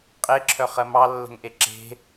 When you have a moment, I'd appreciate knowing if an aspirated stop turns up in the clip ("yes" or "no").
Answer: yes